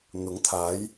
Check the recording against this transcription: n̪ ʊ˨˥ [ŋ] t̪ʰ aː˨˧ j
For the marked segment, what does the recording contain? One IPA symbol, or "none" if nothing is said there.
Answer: ŋ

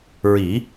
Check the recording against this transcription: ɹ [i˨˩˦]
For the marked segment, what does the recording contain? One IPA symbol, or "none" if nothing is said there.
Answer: i˨˩˦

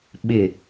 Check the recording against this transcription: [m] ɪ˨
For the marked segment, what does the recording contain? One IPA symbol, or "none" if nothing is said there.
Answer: ɓ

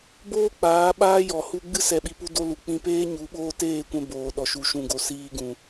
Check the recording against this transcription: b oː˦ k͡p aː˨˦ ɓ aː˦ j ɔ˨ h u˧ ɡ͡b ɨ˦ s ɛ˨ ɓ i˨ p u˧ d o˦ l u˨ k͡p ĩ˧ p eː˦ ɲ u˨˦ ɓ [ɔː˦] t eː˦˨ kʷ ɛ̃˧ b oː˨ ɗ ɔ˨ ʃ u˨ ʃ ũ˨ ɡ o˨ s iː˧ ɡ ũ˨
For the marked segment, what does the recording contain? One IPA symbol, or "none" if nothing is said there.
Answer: oː˦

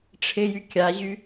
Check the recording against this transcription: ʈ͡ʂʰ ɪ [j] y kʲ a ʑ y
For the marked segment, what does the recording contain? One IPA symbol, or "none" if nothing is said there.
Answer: j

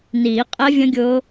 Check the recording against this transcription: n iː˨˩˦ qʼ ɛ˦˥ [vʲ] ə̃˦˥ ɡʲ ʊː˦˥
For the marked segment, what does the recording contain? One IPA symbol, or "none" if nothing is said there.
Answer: vʲ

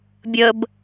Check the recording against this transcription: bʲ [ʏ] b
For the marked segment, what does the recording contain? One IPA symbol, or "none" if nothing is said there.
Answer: ə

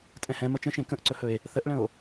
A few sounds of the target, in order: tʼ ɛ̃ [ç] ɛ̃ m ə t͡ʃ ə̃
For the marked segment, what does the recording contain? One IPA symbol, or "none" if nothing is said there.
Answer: h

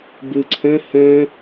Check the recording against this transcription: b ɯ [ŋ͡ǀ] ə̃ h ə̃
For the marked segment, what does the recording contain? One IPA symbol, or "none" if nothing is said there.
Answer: ǀʰ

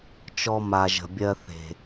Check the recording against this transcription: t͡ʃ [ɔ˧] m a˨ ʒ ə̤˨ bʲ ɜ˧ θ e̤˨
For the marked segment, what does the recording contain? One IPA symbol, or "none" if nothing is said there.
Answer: ɔ˧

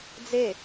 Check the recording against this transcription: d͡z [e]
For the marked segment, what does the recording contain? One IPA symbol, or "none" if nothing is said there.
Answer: e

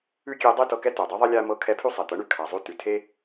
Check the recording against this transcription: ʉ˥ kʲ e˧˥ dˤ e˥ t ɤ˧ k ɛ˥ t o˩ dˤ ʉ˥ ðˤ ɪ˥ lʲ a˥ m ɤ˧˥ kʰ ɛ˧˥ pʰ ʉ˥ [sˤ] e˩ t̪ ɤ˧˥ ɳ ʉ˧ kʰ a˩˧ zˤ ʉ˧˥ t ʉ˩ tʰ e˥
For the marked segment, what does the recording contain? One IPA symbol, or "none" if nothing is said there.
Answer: sˤ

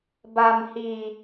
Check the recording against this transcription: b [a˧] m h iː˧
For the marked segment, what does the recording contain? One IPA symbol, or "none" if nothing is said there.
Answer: a˧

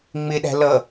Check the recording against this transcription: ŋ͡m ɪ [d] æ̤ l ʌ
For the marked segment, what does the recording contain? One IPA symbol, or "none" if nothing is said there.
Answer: ɗ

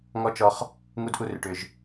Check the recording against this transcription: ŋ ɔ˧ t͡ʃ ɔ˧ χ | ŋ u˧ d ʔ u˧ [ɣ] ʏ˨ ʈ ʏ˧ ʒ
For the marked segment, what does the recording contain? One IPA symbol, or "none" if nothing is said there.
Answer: r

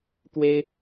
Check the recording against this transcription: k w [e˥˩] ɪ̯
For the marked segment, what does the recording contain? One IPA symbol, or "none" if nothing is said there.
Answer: e˥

